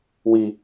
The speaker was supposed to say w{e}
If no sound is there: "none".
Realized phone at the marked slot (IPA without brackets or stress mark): i